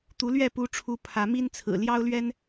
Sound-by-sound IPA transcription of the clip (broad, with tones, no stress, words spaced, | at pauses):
t̪u˨˦lɥɛ˥˨ pu˨˦ʈ͡ʂʰu˨˦ pʰä˨˦mi˦nt͡sʰɹ̩˨˩ ljɑ˦ʊ̯lɥɛ˦n